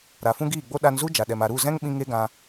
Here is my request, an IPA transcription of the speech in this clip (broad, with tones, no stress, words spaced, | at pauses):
ɾa˨fũ˦ ɡiː˦˨ɡ͡bo˦ ɗa˧nzu˦ d͡ʒa˨ɗɛ˨m a˨ɾu˦˨zɛ̃˦ŋ ɓĩ˦ŋe˦ɡã˧